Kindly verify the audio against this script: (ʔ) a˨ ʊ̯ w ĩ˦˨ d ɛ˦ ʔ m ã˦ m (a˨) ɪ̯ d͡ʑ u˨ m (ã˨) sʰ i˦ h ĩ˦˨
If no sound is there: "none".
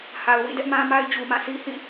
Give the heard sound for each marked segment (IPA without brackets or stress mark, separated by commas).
h, a˦, ã˦˨